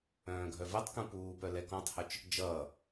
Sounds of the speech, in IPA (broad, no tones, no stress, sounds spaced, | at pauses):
œ̃ː ɡʱ œ v ɛ tˤ k ũ p uː p œ l ɛ k ɔ̃ tˤ h œ t͡ʃ | d͡ʒ ʌː